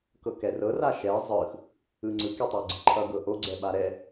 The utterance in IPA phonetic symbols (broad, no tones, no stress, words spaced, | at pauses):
kɤkɛrɤ raʃɛ zˤɯx | ɯŋ͡ǀɯk itˤɤɡ͡ǀəǃʰʌ ɡɤʔo ɡ͡ǀɛɓaɾɛ